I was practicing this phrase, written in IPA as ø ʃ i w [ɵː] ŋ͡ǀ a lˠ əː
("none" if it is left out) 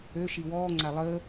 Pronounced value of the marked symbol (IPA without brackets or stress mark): ɔː